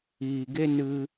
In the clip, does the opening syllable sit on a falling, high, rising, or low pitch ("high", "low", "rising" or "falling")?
low